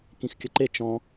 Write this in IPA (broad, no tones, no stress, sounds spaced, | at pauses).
k ĩ x kʲ ə ǃ e t͡ʃ ɔ̃